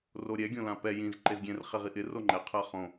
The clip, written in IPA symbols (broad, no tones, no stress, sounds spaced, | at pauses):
r o ɾʲ ɛ ɡʲ õ l ã p ɛ j ĩ z ǃ e z ɡʲ ɛ̃ r χ e ʁ i ʔ ɪ r o ŋ͡ǃ ɛ qʰ a χ õ